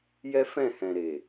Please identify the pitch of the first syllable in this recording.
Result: high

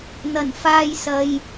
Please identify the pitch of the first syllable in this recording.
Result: low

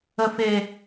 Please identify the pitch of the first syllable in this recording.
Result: low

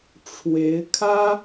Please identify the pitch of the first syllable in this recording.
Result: rising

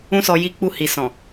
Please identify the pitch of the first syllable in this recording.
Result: high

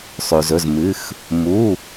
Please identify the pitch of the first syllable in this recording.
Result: low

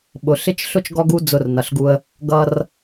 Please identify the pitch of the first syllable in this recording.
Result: low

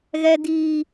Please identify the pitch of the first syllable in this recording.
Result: low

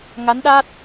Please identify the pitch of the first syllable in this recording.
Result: rising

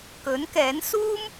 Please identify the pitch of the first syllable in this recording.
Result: rising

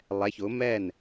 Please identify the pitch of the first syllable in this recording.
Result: rising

